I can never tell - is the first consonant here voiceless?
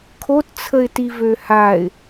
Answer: yes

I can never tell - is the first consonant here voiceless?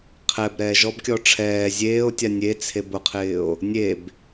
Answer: yes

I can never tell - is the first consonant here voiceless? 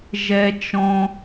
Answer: no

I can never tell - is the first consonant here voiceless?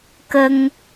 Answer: yes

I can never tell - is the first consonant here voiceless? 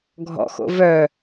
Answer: no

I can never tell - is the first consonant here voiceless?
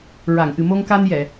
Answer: no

